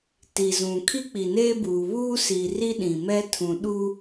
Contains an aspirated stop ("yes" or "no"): yes